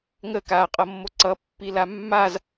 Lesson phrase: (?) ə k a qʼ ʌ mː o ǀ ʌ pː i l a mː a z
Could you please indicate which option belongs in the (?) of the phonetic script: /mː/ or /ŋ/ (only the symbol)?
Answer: ŋ